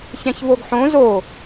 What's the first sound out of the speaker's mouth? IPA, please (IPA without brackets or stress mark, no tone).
ç